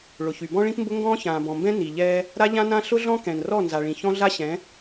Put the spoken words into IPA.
ɭ ʊ˨ ç y˨ b ɔ̃˦ ɭ ĩ˦ p m b ʊ˦ ŋ ɡ ɔ̃ː˦ ç ãː˨ b ɔ̃˨ m b ɛ̃˦ n i˨ ʎ ɛː˦ | ɾ a˦ ʎ ã˦ n ã˦ ɬ ʊ˦ ɮ ɔ̃˦ k ɛ̃˨ n r ɔ˦˨ n z a˨ ɭ ĩ˨ ç ɔ̃˦ ɮ a˦ ɕ ɛ̃˨˦

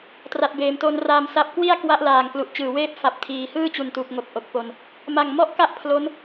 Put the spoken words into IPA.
t r a˨˩ t̚ b eː˩˦ m t o˧ n r aː˧ m s a˥˩ p̚ k w i˥˩ a̯ k w a˦˥ ʔ l aː˨˩ ŋ k l u˨˩ ʔ t͡ɕ ɯː˨˩ w eː˥˩ p̚ f a˨˩ p̚ tʰ iː˨˩ h ɯː˥˩ t͡ɕ u˨˩ n t u˨˩ k̚ ŋ o˨˩ k̚ ʔ o˨˩ k̚ p o˧ n | m a˨˩ ŋ m ɔ˥˩ ʔ k a˥˩ ʔ pʰ l o˦˥ n

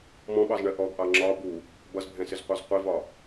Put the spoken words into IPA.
m ɔ̃ ɓ ɑ z ɳ ɜ ʔ ɔ ɡ ʔ ɑ ŋ͡ǁ ɒ b u | b ʌ z bʱ ɛ̃ s ɪ z qʷ ɑ z qʷ i v ɒ

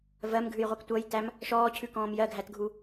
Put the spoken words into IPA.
v ɜ m ɡʱ ʉ j ʁʷ i k tʷ ʌ j t æ m | ʃ ɔː cʰ ʉ k ɔ̃ː m j ɜ ɡʱ æ t ɡʱ u

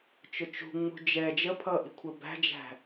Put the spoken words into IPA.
t͡ʃ ʊ t͡ʃ ṳ ŋ͡m ṳ d͡ʒ ɛ d͡ʒ ə pʰ ʌː ʔ i̤ kʷʰ ə b æ̤ d͡ʒ æ̤

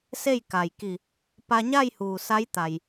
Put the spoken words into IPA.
s e˥˨ j k a˩ j k i˧˩ | p a˧ ɲ a˥˨ j h uː˩ s a˧˥ j t̪ a˩ j

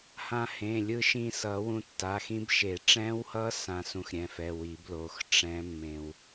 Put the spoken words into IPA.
h ã˧ h ẽ˩˧˩ lʲ ɯ˧ ʃ ĩ˧ s ʌ˨˩˦ w ũ˧ tː a˩˧˩ x ĩ˦˥ b ʃ e˨˩˦ ʈ͡ʂ ɛ̃˦˥ w h ʌ˦˥ s ã˧ s ũ˧ x ɾʲ ɛ̃˩˧˩ f ɛ˩˧˩ w i˨˩˦ b l o˩˧˩ x ʈ͡ʂ ɛ̃˦˥ mː ẽ˧ w

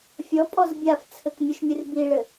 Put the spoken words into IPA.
fʲ ɔ pʼ ɔ z bʲ a f t͡sʰ ɘ k mʲ u ʃ mʲ ɨ r b i ɭ ɘ

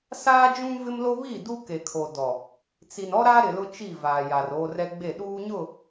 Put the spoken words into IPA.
s aː˦ d͡ʒ ũ˦ v ɪ˦ m l o˦ β i˦˨ d u˦ k e˨ kʰ o˨ d ɔ˨ | t͡s i˨ n ɔ˦ ɾ a˦ ɾ ɪ˨ l ʊ˦ t͡ʃ i˦˨ v aː˨ j a˨ r oː˦ r ɛ˦ ɡ͡b e˦˨ ɗ uː˦ ɲ ʊ˦˨

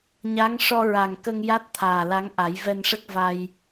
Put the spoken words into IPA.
ɲ a˧˥ ŋ ʂ ɔ˧ ɹ a˨˩ ŋ k ə˧ ŋ j a˦˥ t̚ t̪ʰ aː˨˩ l a˧˥ ŋ ʔ a˨˩˦ j v ɛ˧ n ʂ ə˦˥ k̚ v a˧ j

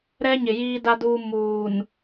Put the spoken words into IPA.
ɾ ɛ˦ ɲ ɪ˨ j iː˦ d a˦ d uː˦ m uː˨ n

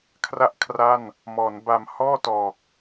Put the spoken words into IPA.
kʰ r a˥˩ ʔ kʰ r a˥˩ n | m ɔː˩˦ n b a˨˩ m h ɔː˥˩ t ɔː˨˩ k̚

